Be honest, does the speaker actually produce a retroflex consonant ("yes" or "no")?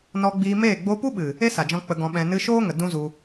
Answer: no